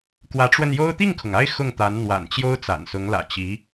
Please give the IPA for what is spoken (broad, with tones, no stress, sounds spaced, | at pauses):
k w ä˧˥ ʈ͡ʂ w ə˧ n j o˥ ʊ̯ t̪ i˥˩ ŋ kʰ ʊ˩ ŋ a˥˧ ɪ̯ x ʊ˥˩ ŋ t̪ a˧˥ n n̪ w a̰˨˩ n t͡ɕ j o˥ ʊ̯ t͡s a̰˨˩ n s ʊ˧˥ ŋ l ä̰˨˩ t͡ɕ i˧˥